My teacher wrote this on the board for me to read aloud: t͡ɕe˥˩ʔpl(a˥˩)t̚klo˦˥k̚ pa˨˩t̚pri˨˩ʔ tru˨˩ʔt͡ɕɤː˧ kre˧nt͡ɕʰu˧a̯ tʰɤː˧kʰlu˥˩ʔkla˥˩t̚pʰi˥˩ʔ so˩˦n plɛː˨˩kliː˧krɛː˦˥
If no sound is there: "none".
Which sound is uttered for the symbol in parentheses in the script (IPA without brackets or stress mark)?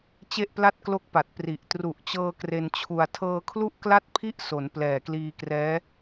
a˥˩